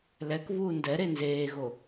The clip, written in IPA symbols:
l ɛ k v uː n d ɛ ɾ e n z eː ɣ o

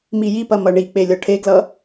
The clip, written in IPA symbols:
m i j i p ɐ m ʌ ɳ i k͡p e lʲ ɔ ʈʰ e ɡ l ʌ

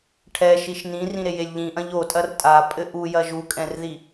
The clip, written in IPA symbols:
ʈʰ ɛ ʃ i ʃ n ĩ r ĩ ɾ e j e lʲ ʎ ĩ ʔ ɐ̃ ʎ o tʼ ɐ r tʼ a pʼ ɘ ʔ u j ɐ ʒ u kʼ ɛ̃ r ð i

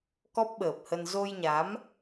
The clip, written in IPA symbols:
k ɔ˦˥ p̚ ɓ əː˨˩ p̚ h ə˧ n z o˧ j ɲ a˨˦ m

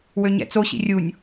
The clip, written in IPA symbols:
w ø ɲ ɛ̰ t͡s o ɕ ḭ rʲ u nʲ

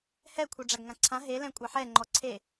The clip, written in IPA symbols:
h ɛ kʷʰ ɛ ɖ͡ʐ a ɡ ŋ ã ǀʰ ã ɦ e l ɛ̃ kʷʼ a ħ ɛ ŋ͡ǃ ɔ ǀʰ e

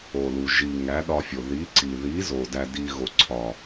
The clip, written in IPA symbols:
o˨ l u˨ ʒ i˨ ŋ æ˨˦ ɗ ɒ˧ fʲ o˨ ð i˨˦ ǀ i˨ ð i˨˦ z o˨ d æ˧ d i˧ ɣ o˨ ǀʰ ɒ˨

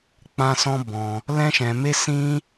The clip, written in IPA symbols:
k͡p ã˦ s ɔ̃˦ b ɔ̃˧ | l ɛ̃˦ ʃ ɛ̃˧ m e˦ s ĩ˦

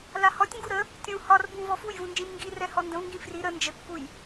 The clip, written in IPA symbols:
l a h ɔ tʲ ŋ ɡ u ɾ ə | tʲ ũ h ɒ r b ũ v ɔ f u j v ũ n d͡ʒ ĩ m ŋ ɡ i r ɛ h ɔ n d ə̃ v ŋ ɡ ĩ f r i ɾ ə n d͡ʒ ə kː u j

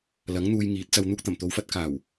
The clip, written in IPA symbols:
l ɐ˨˥ ŋ n̪ uː˧ j ŋ iː˨˥ t̚ t͡s ɐ˧ w n̪ uː˧ k̚ t̪ ɐ˨˩ m t̪ o˨˧ w f ɐ˧ t̚ k aː˨˩ w

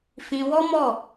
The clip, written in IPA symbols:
f ĩ˧ w ɔ˦ m ɔ˦˨

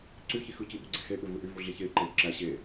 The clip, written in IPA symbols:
ǀ y ç i x ɯ c i ɓ u ɡ͡ǀ e x e ɓ ø v ɯ ʔ y v u ɮ i ç e i̯ ǃ e y̯ ǁ æ ɕ e

